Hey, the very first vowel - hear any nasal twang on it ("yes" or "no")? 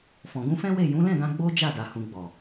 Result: yes